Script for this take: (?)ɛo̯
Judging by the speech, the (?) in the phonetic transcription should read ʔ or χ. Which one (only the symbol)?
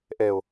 ʔ